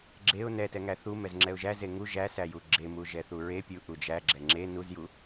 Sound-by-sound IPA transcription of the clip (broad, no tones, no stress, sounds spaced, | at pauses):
ɡ͡ǁ e ʊ̯ n ɛ t ɛ ŋ æ θ u m ɛ z ŋ͡ǁ ɛ ʊ̯ ʒ æ z e ŋ u ʒ æ s æ j u ɡ͡ǁ e m u ʒ ɛ θ u ɹ e pʲ u ʔ u d͡ʒ æ ɡ͡ǁ ɛ ŋ͡ǁ e n u z j u